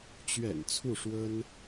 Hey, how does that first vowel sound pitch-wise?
low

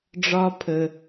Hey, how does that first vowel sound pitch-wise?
high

